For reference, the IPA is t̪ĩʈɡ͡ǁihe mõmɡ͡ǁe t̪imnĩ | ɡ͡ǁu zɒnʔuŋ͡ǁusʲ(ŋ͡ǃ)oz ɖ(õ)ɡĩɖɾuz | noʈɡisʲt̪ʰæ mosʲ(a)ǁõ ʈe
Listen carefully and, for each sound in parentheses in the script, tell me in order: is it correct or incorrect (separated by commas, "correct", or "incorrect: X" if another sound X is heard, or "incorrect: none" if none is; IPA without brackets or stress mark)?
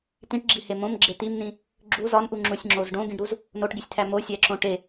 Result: incorrect: ŋ͡ǁ, correct, incorrect: æ